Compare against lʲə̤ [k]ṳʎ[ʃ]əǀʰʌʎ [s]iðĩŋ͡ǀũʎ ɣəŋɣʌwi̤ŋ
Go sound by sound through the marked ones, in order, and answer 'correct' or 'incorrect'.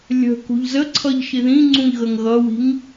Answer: correct, incorrect: z, incorrect: ʃ

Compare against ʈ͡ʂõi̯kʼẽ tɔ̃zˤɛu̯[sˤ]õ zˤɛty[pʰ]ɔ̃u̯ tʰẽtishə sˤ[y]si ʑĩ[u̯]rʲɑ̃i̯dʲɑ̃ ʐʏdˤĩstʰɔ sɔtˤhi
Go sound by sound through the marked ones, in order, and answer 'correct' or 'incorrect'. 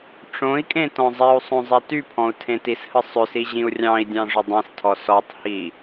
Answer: correct, correct, incorrect: ʏ, correct

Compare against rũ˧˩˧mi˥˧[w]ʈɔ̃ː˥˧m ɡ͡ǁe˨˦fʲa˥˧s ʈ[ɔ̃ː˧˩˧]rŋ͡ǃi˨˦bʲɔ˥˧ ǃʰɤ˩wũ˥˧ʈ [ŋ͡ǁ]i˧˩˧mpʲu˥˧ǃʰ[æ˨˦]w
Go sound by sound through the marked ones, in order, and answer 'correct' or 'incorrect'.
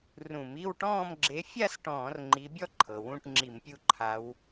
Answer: correct, correct, correct, incorrect: a˨˦

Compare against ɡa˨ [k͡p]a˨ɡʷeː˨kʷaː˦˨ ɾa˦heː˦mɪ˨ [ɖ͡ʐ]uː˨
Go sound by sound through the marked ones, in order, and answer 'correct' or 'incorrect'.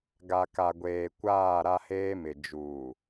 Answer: incorrect: k, incorrect: d͡ʒ

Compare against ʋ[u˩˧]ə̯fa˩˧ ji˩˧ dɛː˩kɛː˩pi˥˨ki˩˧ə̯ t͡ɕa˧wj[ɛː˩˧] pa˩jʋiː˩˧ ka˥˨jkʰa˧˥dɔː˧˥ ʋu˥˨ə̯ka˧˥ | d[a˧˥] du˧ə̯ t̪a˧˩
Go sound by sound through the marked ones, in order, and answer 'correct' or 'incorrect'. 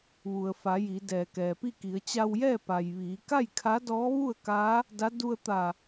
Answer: incorrect: u˩, incorrect: ɛː˥˨, correct

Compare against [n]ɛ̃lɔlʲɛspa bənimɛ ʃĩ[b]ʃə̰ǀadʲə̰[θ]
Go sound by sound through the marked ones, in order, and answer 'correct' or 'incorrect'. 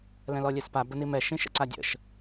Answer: incorrect: l, incorrect: none, incorrect: ʃ

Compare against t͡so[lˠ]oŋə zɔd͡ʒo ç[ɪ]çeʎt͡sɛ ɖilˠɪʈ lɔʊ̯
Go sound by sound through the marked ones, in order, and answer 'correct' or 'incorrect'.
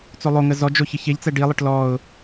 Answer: correct, correct

